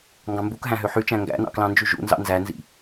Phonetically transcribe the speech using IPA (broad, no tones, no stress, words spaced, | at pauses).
ŋɡɑ̃mbukɦæ̃ ɦøħyt͡ʃæ̃ ŋɡæ̰nɑ̰klɑ̃nd͡ʒy ʒṵ nzɑ̰nzænzḭ